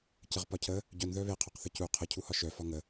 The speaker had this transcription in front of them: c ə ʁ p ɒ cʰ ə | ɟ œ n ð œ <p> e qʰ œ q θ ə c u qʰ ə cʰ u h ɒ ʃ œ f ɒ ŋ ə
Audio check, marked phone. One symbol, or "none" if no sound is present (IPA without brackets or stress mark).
β